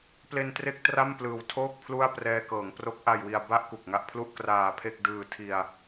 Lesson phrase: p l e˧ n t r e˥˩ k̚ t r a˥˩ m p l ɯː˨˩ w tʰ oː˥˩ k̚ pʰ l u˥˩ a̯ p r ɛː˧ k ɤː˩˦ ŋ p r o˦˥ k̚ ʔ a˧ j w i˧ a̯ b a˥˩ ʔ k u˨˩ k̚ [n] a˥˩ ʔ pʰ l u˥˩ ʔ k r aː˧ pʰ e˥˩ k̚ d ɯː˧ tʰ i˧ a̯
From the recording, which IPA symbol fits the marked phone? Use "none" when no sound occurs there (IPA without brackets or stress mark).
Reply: ŋ